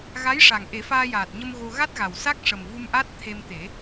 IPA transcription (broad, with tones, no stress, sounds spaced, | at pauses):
ɣ a˧˥ j ʂ a˨˩ ŋ ʔ e˨˩˦ f aː˧ j aː˨˩ t̚ ɲ ə˧ m ɣ o˧ ɣ a˦˥ t̚ ɣ a˨˩ w s a˦˥ k̚ ʂ ə˨˩ m v u˧ m ʔ a˦˥ t̚ t̪ʰ e˧ m t̪ e˨˩˦